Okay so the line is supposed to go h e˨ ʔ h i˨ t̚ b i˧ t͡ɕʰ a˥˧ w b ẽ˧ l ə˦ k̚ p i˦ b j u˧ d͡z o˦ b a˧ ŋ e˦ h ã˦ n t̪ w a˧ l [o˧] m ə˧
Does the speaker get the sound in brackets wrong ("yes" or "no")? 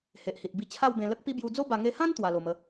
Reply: no